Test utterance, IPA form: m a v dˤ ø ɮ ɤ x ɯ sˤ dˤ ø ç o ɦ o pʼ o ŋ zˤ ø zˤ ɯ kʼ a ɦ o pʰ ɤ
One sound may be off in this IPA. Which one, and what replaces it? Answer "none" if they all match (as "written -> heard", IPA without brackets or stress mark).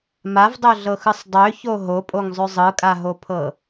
none